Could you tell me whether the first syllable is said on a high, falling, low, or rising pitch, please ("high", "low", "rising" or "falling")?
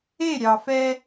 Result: falling